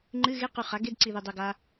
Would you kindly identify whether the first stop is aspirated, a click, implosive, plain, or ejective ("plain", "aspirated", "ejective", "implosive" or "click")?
click